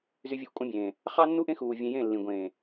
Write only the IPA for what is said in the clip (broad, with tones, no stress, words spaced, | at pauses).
zy˦vʲɯ˦ʔkʷʼɑ̃˦bʲẽː˨ | χɑ˦nːu˦ʔẽ˦ xuː˨ vʲẽ˧jẽ˦˨lːĩ˨ ɡʷẽː˨